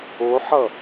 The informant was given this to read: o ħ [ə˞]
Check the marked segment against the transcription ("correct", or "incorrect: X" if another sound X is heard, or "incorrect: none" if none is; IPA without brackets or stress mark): incorrect: ʌ